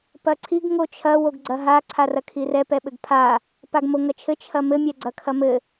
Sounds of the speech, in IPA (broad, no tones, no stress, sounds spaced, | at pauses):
p ɐ ǀʰ i ɡ ŋ o t͡ʃʰ ɐ w o ɡ ɡ͡ǀ ɐ ɦ a ǀʰ a r ɐ kʰ i r ɛ p ɛ ɓ ɘ ɡ pʰ a | p a ɡ m o ŋ ɐ t͡ʃʰ ɘ t͡ʃʰ ɐ m ɘ mʲ ɛ ɡ͡ǀ ɐ kʰ ɐ m ɘ